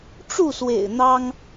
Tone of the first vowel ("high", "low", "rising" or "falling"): falling